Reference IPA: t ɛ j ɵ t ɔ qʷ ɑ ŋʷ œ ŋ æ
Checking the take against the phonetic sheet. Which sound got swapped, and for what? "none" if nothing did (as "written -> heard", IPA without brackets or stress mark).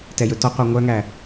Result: none